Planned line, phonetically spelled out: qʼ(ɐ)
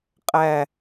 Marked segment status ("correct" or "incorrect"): incorrect